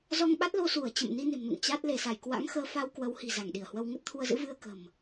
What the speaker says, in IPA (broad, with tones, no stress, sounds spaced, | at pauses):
z ɔ˧ ŋ ɓ a˦˥ t̚ l o˧ s u˧˩ ə̯ t͡ɕ ə̰˧˨ m n i˧ n e̤˨˩ m n ṵ˧˨ ŋ t͡ɕ a˦˥ t̚ l e˧˩ s a˧˩ j k w a̰˧˥ ŋ x əː˧ f a˧ w k w ə˨˦ w h i̤˨˩ z a˧˩ ŋ ɗ i˧˩ ə̯ h w ə˧ w ŋ ə˦˥ t̚ t̪ʰ u˧ ə̯ z ɨ̰˧˥ v ɨ˧ ə̯ k ə̤˨˩ m